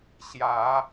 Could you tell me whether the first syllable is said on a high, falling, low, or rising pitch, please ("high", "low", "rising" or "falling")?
rising